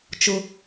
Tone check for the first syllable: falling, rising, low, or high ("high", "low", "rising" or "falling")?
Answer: high